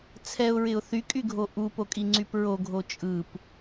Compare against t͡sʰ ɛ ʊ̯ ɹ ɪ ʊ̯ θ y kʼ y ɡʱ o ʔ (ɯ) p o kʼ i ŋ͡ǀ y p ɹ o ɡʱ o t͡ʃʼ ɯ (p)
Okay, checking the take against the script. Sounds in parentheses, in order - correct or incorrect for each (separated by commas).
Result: incorrect, correct